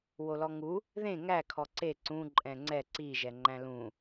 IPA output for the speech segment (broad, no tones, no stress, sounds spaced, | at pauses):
w o l ɔ ŋ u | ð ẽ ŋ æ kʰ ɔ ǀ e ǀ ũ ǃʼ ɛ̃ ŋ͡ǀ ɛ ǀ i ʒ ɛ ŋ͡ǃ æ̃ l ũ